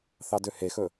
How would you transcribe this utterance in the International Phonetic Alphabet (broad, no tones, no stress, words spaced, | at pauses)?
θɑdøhexɵ